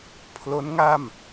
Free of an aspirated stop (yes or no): no